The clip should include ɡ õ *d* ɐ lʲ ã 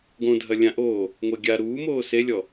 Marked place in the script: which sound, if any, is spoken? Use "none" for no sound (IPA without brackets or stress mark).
dʱ